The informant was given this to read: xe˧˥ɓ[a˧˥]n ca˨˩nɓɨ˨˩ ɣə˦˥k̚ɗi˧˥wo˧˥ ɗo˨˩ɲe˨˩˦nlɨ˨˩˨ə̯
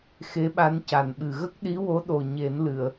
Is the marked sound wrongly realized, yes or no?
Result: no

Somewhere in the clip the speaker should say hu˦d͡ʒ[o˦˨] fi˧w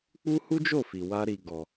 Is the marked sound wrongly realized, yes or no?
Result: no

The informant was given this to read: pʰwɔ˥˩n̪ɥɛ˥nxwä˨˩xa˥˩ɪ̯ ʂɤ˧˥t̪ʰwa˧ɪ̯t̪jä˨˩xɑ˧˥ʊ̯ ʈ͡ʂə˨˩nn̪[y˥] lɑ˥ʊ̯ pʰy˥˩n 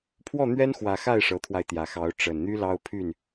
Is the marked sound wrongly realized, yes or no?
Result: no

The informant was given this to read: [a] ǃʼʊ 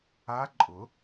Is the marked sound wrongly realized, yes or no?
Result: no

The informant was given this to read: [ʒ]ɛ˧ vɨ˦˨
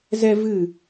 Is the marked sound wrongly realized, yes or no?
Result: yes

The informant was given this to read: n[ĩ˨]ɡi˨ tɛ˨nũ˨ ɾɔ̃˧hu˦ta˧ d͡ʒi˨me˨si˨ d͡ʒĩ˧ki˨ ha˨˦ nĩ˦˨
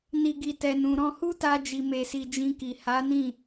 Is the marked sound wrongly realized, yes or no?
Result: yes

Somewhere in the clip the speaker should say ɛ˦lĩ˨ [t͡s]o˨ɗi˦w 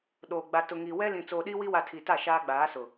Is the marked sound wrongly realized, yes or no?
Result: no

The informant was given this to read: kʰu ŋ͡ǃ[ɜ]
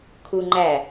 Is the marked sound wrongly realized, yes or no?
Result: yes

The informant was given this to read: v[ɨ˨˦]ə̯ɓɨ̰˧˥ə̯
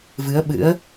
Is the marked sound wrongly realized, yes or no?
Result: no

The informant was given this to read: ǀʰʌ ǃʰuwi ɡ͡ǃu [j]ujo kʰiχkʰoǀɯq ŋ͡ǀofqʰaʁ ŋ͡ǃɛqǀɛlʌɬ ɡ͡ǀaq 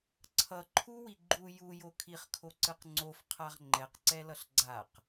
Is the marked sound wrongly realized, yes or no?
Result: no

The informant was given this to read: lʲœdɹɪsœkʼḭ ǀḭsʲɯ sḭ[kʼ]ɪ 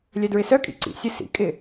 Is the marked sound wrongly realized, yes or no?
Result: no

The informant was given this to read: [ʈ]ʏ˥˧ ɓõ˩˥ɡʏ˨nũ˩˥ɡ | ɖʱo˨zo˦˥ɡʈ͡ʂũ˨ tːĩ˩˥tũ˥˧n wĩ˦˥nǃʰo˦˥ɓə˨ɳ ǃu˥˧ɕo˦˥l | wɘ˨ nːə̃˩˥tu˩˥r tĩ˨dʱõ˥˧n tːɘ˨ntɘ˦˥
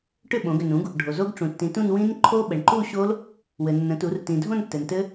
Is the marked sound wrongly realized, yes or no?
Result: no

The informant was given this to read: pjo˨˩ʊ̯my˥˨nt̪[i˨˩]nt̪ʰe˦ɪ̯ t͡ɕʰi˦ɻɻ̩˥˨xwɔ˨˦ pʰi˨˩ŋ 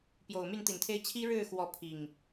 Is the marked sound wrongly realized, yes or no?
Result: no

